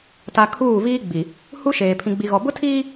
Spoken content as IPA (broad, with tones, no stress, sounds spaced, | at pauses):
t a˨ kʰ uː˦˨ v iː˦ ɡ͡b i˨ | h u˦ ʃ eː˨ pʰ ĩ˨ ɡ͡b i˨ ɣ ɔ˨ b ʊ˦ tʰ iː˦